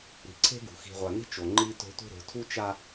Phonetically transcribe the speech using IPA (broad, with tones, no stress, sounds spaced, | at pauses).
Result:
ɾ i̤˨ ǀʰ e̤˦ ɡ ṳ˨ x i̤˨ ʁʷ a˨ n i̤˦ t͡ʃ o˨ ŋ͡ǃ i˦ t o̤˦ tʷ i̤˦ ɾ o̤˨˦ tʰ u˦ t͡ʃ a˦